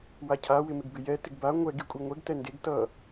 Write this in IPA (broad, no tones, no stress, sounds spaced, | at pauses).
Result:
w a cʰ a w ɪ m ɪ ɡ b ɪ j ɛ t ɪ ɡ b a ŋʷ ɛ ɡ i kʷʼ e ŋʷ ɛ ɡ t ɛ n d e ɡ t ʌ